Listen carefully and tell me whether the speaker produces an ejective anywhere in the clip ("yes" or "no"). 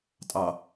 yes